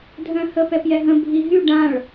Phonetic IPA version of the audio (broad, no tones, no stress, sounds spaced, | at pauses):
dʱ œ̃ h ə p ɛ p j ɛ ɦ ə̃ bʱ i ɦ y ɖ ã ɭ